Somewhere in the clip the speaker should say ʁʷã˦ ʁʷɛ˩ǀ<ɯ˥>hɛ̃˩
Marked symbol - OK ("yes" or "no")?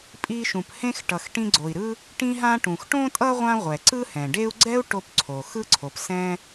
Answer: yes